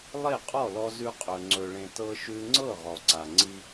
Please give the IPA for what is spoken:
lˠ e˥˩ qʼ ɔ˥˩ l ɔ˧ z ʉ˧ qʼ ɵ˩ ŋ͡ǀ ɵ˩ ɭ ẽ˩ t ɤ˧ ʃ ʉ˧ ŋ͡ǀ ɤ˥˩ ʁ ɔ˩ ǀ a˩ ŋ͡ǀ i˧

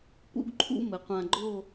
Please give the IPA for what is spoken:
p ṵ˥ ɡ ǃʰ ṵ˥ m ɘ˩˧ qʷ ã˧ ɡ͡ǃ o˥˧

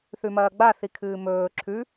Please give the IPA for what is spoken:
θ ʉ m ɐː ɡ͡b a θ i kʰ ɨː m ɵː ǁʰ ʉ

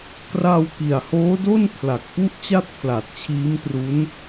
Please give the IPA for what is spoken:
k r a˧ w k i˨˩ a̯ h oː˦˥ d o˥˩ n pʰ l a˨˩ k̚ p u˥˩ ʔ t͡ɕ a˥˩ t̚ pʰ l a˨˩ t̚ t͡ɕʰ iː˦˥ m t r u˦˥ n

